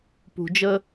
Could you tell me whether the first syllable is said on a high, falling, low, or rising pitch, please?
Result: low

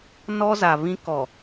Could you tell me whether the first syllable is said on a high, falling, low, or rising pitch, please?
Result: high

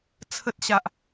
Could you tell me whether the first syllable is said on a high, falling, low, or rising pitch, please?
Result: high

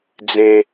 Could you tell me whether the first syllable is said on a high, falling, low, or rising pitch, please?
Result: low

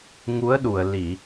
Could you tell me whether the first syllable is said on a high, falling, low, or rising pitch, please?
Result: rising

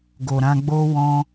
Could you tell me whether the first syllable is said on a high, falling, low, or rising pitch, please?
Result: low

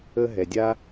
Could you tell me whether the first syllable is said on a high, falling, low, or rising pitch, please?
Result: high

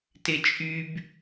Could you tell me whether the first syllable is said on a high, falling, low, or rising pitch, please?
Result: high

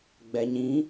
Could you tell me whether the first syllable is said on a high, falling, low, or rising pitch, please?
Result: low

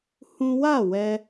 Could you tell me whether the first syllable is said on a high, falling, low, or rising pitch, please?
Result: high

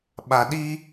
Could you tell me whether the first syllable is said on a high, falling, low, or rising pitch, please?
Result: low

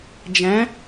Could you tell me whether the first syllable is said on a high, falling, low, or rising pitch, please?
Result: rising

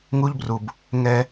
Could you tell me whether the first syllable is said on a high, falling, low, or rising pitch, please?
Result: high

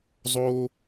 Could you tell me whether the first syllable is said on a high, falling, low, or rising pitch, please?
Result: high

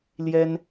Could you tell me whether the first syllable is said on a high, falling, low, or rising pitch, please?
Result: high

